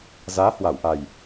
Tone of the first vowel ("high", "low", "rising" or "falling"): rising